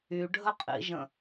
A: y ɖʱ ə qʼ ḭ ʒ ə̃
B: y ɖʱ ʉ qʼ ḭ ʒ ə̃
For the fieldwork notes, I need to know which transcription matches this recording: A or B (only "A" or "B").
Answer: A